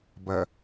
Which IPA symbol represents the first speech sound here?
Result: b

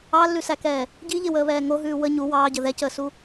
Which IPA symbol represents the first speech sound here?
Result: ɑ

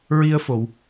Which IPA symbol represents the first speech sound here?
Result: ɹ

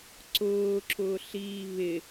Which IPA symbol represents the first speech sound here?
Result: ǀ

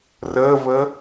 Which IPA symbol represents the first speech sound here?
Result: r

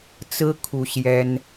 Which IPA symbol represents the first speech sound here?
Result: t͡s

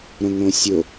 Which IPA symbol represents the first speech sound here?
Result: ɾ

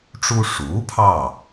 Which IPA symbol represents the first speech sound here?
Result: ʈ͡ʂ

